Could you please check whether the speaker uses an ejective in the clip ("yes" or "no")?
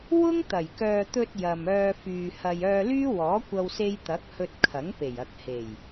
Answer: no